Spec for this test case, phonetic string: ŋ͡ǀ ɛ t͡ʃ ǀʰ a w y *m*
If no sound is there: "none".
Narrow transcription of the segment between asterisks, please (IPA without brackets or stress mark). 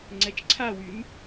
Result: m